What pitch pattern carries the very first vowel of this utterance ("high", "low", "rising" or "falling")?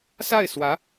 falling